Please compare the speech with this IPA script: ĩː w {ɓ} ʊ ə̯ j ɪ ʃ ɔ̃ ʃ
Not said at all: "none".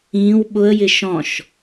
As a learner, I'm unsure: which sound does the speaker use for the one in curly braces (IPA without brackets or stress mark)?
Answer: ɓ